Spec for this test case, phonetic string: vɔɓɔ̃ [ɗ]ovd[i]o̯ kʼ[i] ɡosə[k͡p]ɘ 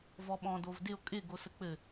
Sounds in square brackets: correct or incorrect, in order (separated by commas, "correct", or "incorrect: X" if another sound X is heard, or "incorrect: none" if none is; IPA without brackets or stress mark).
incorrect: d, incorrect: ɪ, incorrect: ɪ, correct